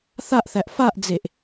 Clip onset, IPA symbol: θ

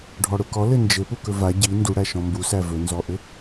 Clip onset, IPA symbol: ɖʱ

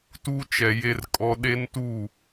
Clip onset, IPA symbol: t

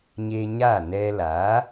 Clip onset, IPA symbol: ɲ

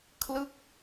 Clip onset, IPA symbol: kʰ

